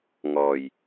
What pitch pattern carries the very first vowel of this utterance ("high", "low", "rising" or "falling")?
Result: low